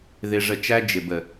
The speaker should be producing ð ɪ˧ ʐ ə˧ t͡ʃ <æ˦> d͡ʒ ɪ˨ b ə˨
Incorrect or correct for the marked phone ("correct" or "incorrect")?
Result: correct